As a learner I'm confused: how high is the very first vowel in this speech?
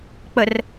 mid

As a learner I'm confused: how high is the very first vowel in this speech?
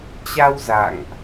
low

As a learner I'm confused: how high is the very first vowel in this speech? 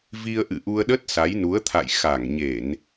high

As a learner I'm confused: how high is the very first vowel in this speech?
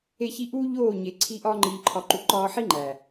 mid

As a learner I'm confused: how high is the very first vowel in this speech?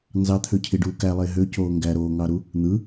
low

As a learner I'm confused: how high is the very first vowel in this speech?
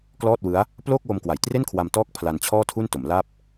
mid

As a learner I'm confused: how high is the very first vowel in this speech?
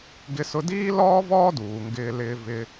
high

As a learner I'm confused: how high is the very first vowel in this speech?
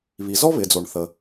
high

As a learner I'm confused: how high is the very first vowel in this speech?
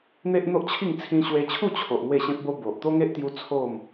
mid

